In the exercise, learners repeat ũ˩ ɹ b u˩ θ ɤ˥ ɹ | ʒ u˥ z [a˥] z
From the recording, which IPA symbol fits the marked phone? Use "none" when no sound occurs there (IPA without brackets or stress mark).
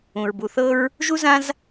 ã˥